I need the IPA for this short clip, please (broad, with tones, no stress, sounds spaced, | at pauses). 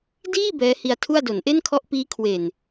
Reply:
d iː˥˩ b ɛː˦˥ h i˧ a̯ tʰ u˥˩ a̯ d o˩˦ n ʔ e˥˩ n kʰ ɔ˦˥ ʔ p iː˦˥ kʰ w e˨˩ n